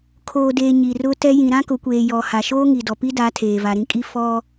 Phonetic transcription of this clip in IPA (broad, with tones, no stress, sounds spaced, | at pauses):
kʰ oː˨ d eː˨ ɲ i˨ r ʊ˦ t ɛ˦ j ĩ˨ ɾ ã˦ k ʊ˨˦ kʷ eː˨ j ɔ˨ h a˨ ʃ oː˦ ŋ i˨ d ɔ˨ p i˦ d a˨˦ tʰ eː˨ v a˨ ɾ ĩ˦ kʼ i˦ f ɔ˦